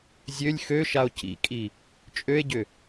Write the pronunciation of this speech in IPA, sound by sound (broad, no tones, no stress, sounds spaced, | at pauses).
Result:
zʲ ø lʲ x ø ʃ a o̯ c ḭ kʼ i | t͡ʃʼ ø e̯ ɟ ʏ